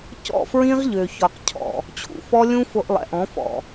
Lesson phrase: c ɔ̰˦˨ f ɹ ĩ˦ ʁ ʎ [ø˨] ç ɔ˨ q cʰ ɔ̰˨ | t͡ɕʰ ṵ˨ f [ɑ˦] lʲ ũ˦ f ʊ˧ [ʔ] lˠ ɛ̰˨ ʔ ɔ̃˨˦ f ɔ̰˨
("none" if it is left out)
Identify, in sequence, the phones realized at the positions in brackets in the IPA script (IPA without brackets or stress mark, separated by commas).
ø˨, ɔ˦, ʔ